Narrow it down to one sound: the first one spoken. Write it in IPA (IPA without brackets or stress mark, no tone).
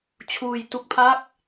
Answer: t͡ɕʰ